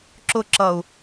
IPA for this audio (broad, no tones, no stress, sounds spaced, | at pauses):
ǁ ʊ ǁ ʌ u̯